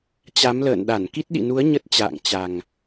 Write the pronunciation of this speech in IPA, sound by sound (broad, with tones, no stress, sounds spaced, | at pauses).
t͡ɕ a˨˦ m l ə̰ː˧˨ n ɗ a˧˩ n k i˦˥ t̚ ɗ ḭ˧˨ n u˨˦ ə̯ ɲ ə˦˥ t̚ t͡ɕ a̰ː˧˨ ŋ t͡ɕ a˨˩ ŋ